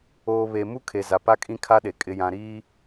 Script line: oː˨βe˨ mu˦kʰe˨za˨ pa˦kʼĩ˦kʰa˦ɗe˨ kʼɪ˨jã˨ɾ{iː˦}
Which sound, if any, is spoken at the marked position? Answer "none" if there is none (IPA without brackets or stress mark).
iː˦